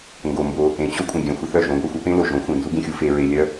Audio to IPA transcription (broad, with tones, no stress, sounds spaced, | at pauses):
ŋ ɡ o˨ m b o˧ | ẽ˨ t͡ɕ o˦ kʷʼ ə̃˨ ɡʲ œ̃˨ xʷ ə˧ θ œ˦˨ ʒ õ˨˦ ɡʷ œ˧ xʷ ɐ˦ p ẽ˦ l o˨ ʒ õ˨˦ xʷ ẽ˨ n z u˦ ɡ ẽ˧ xʲ u˧ f e˧ ɹ e˧ lʲ œ˦